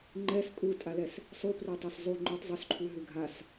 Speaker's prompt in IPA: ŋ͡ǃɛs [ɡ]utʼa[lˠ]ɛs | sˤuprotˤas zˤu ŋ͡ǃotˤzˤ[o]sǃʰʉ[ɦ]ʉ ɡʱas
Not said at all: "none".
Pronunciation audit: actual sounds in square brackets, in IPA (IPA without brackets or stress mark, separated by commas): kʼ, l, o, ɦ